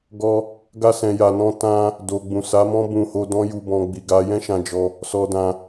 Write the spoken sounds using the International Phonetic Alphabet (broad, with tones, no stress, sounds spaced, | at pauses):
ɡ ɔ˧ | ɡ a˧ s ɛ̃˨ j a˨ n ɔ̃˧ t ã˧ | d o˨ ɡ͡b ũ˨ s a˨˦ m ɔ̃˦ b ũ˧ h o˧ d ɔ̃˦ j u˧ b ɔ̃˧ ɡ͡b i˧ ɡ a˦ j ɛ̃˦ ʃ ã˧ d͡ʒ ɔ˧ | s ɔ˧ d ã˧